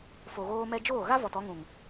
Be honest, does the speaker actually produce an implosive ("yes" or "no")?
no